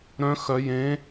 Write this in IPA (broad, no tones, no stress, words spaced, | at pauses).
ɾœ̃ xœ jẽ